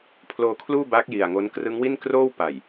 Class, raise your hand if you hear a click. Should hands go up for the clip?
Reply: no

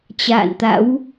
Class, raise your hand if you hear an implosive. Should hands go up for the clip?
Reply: no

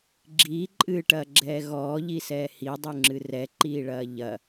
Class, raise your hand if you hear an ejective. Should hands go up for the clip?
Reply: yes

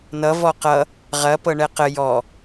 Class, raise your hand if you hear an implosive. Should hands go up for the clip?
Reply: no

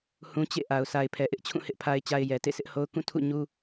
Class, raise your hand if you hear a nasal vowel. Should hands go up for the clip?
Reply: yes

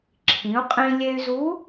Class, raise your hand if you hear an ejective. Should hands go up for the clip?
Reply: yes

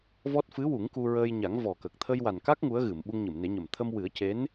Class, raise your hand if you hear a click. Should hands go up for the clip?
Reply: no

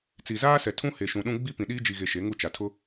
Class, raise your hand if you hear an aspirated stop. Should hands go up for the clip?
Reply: yes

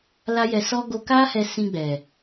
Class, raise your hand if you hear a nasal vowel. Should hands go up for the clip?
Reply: yes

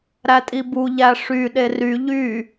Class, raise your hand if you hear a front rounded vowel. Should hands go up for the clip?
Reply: yes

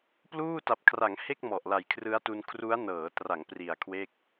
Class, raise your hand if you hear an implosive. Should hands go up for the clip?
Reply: no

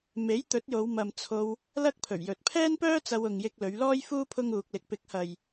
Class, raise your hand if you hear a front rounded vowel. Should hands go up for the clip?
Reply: yes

